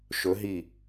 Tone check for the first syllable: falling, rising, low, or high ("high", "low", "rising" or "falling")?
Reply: rising